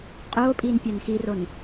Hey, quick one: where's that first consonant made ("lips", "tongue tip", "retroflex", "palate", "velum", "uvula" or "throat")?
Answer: uvula